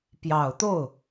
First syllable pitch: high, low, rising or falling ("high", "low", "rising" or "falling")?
low